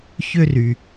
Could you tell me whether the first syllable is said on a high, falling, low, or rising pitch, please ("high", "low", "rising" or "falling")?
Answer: high